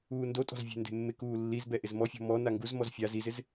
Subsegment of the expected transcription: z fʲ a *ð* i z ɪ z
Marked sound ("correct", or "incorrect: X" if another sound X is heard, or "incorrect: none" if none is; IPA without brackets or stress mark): incorrect: z